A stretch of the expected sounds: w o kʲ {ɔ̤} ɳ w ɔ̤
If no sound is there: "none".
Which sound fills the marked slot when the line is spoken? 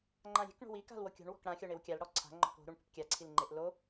o̤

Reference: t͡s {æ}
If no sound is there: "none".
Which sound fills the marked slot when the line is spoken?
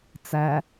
æ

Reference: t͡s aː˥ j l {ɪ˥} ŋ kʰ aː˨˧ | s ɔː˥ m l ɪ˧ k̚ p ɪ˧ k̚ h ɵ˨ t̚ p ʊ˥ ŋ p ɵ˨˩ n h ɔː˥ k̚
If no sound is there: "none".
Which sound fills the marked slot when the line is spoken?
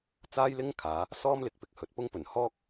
ɪ˥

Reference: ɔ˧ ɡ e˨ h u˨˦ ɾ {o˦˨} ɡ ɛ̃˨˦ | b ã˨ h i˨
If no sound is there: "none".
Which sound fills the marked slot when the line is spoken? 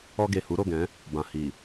o˦˨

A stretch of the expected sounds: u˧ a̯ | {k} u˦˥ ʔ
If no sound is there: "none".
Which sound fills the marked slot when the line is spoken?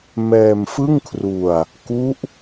k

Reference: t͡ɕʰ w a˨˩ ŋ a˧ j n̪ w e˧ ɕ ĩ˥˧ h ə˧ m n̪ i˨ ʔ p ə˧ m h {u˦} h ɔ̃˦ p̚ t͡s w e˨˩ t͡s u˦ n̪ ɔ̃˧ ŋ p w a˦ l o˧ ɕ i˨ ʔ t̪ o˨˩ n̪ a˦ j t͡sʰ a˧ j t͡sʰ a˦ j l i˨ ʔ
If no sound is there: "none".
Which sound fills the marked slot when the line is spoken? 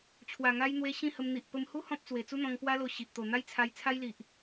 u˦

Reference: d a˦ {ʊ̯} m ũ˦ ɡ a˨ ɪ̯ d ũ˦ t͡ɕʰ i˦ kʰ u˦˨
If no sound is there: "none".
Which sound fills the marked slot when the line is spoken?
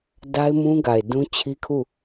ɪ̯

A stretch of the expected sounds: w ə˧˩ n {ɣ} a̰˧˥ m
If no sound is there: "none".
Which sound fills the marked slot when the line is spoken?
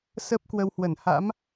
h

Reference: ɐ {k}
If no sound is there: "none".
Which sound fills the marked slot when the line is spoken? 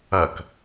k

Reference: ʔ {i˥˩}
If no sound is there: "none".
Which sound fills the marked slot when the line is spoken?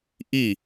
i˥˩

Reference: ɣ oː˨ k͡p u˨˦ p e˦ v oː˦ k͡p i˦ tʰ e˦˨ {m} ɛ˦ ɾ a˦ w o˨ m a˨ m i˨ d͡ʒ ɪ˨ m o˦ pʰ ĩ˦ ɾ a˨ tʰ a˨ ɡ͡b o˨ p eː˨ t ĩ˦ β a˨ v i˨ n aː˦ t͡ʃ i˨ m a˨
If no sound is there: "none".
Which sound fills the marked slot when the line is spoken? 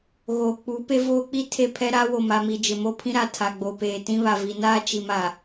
pʰ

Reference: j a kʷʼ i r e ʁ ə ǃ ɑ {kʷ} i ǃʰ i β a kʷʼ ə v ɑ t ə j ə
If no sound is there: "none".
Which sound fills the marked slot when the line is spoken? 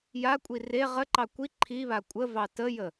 kʷ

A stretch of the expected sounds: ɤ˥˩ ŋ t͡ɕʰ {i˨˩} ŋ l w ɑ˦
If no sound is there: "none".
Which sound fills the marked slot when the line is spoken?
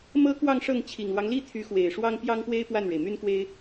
i˨˩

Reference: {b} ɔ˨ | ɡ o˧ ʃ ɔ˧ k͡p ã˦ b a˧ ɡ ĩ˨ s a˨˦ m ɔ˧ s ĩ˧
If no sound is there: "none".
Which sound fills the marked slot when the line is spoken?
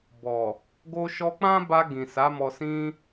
b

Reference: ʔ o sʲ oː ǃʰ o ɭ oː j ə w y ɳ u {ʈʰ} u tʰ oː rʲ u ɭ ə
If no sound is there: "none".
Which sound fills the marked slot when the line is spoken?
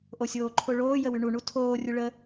ɳ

